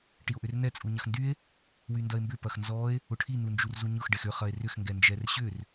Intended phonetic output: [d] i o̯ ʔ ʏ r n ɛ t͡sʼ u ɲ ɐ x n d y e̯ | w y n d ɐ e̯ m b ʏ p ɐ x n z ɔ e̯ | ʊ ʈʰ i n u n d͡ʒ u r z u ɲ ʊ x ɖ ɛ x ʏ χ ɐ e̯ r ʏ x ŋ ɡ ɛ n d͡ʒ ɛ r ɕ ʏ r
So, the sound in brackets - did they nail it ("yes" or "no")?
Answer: no